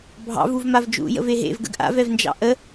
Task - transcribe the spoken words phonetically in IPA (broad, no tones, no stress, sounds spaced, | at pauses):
bʱ ɑ̰ v u v m a v d͡ʒ ṵ j ə̰ v e ɦ ḛ v ɡ ə̰ ɡ ʔ a̰ v ɛ v n d͡ʒ ɑ̰ ʔ ə